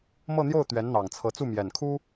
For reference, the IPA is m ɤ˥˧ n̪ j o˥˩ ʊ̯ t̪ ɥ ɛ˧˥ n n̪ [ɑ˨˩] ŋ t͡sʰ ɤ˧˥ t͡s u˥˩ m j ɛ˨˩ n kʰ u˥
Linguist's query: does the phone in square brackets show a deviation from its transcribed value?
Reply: no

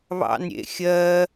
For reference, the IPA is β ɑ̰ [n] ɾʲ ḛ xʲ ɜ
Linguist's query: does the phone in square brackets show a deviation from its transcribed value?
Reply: no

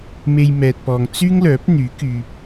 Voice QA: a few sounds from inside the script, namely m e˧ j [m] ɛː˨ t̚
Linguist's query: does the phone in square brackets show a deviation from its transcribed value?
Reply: no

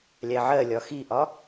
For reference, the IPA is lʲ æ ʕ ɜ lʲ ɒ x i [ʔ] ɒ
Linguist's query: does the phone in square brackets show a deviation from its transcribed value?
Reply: no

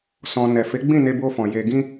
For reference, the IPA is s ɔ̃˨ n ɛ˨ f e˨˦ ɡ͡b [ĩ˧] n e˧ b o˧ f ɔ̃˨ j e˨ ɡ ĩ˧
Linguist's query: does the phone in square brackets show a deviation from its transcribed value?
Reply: yes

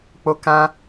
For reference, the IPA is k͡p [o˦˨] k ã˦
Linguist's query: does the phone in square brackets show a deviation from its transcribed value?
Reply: yes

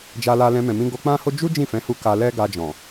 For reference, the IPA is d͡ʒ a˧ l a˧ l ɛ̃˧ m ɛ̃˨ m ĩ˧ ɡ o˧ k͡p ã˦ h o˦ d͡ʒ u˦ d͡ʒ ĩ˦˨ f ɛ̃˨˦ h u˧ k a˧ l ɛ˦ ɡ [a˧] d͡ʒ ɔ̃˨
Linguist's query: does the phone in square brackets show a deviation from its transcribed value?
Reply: no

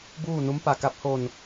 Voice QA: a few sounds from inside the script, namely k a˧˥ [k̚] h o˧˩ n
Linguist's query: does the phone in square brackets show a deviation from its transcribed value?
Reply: yes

